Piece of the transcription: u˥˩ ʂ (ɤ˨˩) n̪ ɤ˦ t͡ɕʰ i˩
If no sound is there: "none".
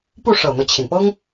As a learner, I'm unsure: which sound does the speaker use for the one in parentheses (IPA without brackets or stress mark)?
ɤ˨˩